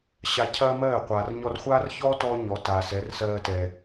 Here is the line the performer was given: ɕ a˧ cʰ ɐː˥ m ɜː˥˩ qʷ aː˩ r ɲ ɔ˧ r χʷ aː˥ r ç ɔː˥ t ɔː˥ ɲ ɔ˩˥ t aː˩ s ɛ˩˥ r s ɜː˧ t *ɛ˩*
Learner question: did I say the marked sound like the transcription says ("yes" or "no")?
yes